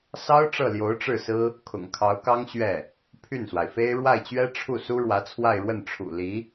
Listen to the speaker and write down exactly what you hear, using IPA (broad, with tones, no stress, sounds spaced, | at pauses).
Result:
s ɑ˥ ʊ̯ ʈ͡ʂ ɤ˥˩ l j o˧˥ ʊ̯ ʈ͡ʂ ɻ̩˥˩ s ɹ̩˥ | kʰ ʊ̰˨˩ ŋ kʰ ɑ˧˥ ʊ̯ k ɑ˥ ŋ ɕ ɥ ɛ˥˩ | pʰ y˥˩ n s w a˩ ɪ̯ f e˥ ɪ̯ ɻ w a˥˩ ɪ̯ t͡ɕ ɥ ɛ˥ ʈ͡ʂʰ u˥˩ s u˥ ɻ w ä˧˥ t͡sʰ w a˥˧ ɪ̯ ɻ w ə˥˩ n ʈ͡ʂʰ ṵ˨˩ l i˧˥